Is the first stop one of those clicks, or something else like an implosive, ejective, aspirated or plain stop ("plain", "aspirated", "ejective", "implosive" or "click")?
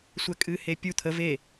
ejective